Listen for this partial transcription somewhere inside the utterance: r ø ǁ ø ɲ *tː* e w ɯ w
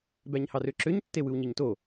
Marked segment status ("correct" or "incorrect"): correct